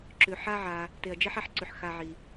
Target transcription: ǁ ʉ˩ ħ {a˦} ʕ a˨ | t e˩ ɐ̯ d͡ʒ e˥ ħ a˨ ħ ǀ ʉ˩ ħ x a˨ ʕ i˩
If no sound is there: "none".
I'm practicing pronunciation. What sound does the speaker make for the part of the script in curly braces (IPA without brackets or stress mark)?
a˦